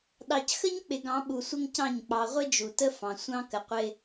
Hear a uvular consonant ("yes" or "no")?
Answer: yes